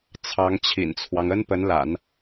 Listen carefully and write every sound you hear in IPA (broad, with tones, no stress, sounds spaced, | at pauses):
t͡sʰ ɑ˧˥ ŋ t͡ɕʰ ḭ˨˩ n t͡sʰ w ɑ˦ ŋ ə˥ n p ə˧˥ n l a̰˨˩˦ n